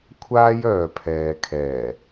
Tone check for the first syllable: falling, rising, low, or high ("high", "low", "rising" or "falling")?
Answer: high